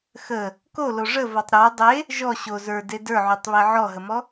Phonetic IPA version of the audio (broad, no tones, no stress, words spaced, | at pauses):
xə | kolo ʐə vɔtˤɾə˞ dˤe | ʒɔ ɕo zə˞de də˞ʕʉtˤβe ʕɔɦəmɔ